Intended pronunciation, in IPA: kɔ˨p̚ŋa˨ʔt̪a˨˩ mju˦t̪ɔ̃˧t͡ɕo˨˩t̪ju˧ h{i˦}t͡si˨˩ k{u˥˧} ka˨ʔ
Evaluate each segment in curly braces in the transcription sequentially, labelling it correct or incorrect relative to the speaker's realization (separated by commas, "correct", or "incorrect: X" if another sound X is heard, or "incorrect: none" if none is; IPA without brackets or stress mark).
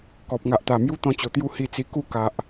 incorrect: i˨˩, correct